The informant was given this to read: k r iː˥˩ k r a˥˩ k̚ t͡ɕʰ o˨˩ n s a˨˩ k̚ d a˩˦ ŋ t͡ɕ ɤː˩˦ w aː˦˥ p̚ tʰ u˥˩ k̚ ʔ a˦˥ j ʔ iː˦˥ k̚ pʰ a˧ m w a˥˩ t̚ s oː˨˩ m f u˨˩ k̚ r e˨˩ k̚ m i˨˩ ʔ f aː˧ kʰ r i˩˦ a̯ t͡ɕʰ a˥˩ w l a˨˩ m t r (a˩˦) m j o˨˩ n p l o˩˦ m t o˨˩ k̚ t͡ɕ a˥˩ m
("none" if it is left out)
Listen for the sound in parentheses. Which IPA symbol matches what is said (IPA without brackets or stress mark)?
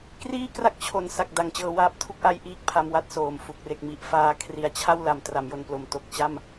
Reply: a˩˦